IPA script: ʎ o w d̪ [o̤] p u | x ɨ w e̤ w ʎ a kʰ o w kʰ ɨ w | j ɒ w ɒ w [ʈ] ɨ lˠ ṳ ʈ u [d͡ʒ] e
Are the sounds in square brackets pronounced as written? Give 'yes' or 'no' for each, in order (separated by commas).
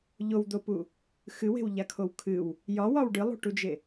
no, no, yes